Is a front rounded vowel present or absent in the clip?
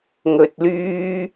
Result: present